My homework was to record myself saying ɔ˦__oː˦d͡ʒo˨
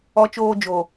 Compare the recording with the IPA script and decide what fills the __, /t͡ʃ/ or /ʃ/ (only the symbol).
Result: t͡ʃ